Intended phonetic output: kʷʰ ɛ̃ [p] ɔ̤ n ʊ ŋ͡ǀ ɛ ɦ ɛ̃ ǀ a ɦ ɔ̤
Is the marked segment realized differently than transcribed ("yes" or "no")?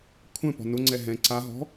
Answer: no